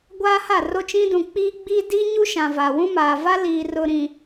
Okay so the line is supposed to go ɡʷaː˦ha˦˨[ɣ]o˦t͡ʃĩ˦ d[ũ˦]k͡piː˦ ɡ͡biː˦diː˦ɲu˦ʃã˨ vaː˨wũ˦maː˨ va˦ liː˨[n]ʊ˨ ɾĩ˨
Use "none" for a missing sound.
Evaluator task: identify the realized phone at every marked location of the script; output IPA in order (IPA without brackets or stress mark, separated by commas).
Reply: r, ũ˨, r